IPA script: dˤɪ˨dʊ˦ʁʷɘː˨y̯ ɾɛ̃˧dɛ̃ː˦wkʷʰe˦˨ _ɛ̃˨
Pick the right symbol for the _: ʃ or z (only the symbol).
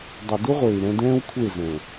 z